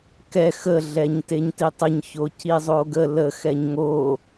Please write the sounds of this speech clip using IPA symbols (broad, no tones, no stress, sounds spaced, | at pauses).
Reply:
k ɛ x ə ɮ ɛ ɲ t e ɲ t i tˤ ə ɲ ç o c i zˤ o ɡ ə l ə x ɛ ɲ ŋ o